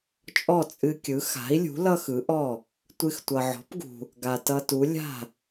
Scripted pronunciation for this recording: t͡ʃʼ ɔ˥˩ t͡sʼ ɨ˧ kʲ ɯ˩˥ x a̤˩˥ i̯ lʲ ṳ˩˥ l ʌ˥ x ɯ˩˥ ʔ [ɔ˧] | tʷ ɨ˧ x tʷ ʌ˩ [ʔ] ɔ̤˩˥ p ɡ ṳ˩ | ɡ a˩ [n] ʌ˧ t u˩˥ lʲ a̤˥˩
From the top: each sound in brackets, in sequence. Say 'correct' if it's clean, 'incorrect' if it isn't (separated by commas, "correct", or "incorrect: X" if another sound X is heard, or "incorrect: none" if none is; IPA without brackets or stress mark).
incorrect: ɔ˥˩, incorrect: ʕ, incorrect: t